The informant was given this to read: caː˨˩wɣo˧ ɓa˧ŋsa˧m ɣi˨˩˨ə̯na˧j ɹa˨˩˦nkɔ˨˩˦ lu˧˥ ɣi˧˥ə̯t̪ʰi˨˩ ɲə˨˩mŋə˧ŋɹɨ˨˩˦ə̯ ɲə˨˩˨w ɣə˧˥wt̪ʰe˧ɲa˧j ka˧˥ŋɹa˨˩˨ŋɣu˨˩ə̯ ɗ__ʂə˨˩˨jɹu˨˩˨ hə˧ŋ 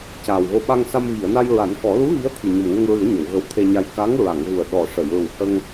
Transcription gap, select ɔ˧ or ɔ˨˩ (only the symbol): ɔ˨˩